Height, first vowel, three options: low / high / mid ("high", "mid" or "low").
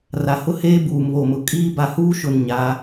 low